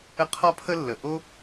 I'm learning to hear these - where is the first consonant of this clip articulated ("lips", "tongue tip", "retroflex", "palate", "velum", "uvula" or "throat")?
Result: uvula